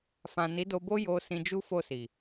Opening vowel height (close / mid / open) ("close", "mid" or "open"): open